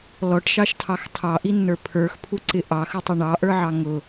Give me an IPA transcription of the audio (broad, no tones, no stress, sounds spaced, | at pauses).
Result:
l ɔ ʈ ʃ ɑ ʃ tʰ ɑ x tʰ ɑ ʔ i nː ə˞ pʰ ə˞ x pʰ u ǀ ɪ ʔ ɑ x ə tˤ ɪ ɳ ɑ ʔ ə˞ ʕ ɑ ŋ ʊ